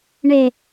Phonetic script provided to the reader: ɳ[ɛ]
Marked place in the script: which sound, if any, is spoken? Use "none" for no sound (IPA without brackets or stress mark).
e